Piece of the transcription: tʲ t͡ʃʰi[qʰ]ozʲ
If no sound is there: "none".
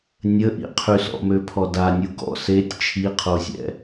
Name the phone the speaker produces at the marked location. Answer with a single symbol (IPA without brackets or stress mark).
qʰ